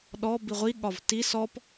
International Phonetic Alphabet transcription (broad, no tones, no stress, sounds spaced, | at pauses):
ɗ ɔ b i ʁʷ i ɠ ɒ v t i s ɔ p